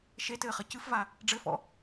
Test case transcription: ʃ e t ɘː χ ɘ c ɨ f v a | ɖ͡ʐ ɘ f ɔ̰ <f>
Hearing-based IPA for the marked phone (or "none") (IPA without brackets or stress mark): none